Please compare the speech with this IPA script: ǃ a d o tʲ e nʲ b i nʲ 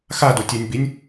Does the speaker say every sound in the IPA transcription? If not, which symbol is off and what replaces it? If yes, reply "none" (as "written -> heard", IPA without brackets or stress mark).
ǃ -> x